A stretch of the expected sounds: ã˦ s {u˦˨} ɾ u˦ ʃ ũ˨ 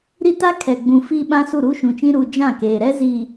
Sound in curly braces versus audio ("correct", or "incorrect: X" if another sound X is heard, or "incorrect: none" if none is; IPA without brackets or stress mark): correct